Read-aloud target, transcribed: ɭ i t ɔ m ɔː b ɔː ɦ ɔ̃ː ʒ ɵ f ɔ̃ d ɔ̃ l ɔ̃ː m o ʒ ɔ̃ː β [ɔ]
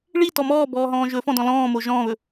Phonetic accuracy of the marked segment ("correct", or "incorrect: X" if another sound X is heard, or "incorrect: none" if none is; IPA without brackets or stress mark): incorrect: ɵ